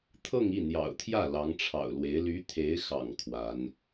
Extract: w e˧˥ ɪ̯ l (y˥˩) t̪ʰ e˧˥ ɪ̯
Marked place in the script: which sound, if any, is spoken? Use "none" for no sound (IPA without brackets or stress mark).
y˧˥